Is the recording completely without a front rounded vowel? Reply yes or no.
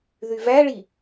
no